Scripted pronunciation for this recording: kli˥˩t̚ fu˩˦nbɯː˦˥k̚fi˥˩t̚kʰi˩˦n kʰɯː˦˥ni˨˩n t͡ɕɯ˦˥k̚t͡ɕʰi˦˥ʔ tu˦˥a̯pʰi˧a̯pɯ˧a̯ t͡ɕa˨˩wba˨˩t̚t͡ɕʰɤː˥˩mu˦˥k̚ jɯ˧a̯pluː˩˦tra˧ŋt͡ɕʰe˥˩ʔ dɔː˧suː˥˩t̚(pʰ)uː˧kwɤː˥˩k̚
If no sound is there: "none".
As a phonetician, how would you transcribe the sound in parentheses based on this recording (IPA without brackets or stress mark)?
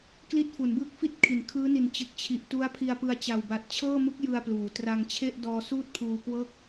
pʰ